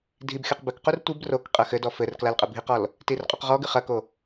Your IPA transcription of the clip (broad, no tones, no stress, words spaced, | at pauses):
dʱibxʲoq bɘkqur tʷib rokqʼɐ xɘdɔ fɘr klalqʼɘbʱiqɔl | tirqʼuqʁɔɡɨ χɐko